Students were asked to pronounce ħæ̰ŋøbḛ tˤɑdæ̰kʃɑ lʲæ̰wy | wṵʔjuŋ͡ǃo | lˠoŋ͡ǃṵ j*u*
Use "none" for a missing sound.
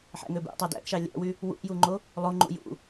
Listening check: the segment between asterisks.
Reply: ṵ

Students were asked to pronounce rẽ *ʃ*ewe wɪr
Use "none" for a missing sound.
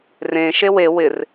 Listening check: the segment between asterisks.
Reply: ʃ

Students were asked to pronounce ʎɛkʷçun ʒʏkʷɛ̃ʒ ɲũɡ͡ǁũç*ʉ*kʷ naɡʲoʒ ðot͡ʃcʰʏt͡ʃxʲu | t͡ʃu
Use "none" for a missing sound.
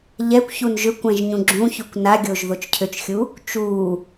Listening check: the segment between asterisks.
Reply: ʉ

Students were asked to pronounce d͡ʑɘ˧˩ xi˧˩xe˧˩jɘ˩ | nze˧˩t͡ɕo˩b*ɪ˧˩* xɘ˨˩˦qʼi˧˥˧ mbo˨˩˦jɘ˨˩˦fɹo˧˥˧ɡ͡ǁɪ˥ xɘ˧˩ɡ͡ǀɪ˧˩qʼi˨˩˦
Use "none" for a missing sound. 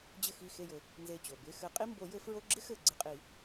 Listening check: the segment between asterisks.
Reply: ɪ˧˥˧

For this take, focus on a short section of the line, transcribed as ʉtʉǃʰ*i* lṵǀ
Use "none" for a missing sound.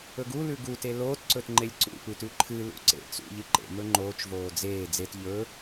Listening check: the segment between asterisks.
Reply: ɨ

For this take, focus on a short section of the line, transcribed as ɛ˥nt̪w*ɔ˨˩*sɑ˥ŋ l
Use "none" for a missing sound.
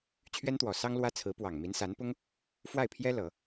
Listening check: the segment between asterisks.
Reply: ɔ˨˩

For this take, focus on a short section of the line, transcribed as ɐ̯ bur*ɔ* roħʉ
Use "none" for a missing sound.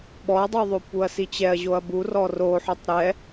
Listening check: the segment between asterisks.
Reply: ɔ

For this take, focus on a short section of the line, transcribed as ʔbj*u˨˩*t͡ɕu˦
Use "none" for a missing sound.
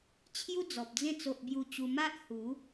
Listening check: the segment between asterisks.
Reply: u˥˧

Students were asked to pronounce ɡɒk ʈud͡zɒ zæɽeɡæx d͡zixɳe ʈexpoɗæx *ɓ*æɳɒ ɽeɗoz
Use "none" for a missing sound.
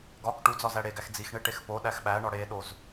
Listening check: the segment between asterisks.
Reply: ɓ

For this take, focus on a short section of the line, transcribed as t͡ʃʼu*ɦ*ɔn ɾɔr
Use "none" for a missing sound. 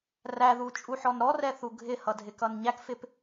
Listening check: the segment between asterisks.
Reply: ħ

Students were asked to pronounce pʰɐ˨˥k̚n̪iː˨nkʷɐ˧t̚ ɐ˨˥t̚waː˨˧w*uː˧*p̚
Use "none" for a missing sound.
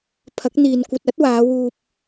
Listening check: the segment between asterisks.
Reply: uː˧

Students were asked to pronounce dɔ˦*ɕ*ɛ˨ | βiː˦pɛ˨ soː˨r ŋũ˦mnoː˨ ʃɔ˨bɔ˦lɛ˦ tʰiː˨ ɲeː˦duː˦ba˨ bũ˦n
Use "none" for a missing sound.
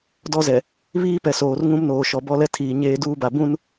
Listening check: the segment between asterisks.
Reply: z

